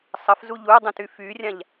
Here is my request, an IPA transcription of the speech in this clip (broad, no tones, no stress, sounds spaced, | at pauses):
sˤ ə f z u ʎ u dˤ ũ t y f y rʲ ã ʎ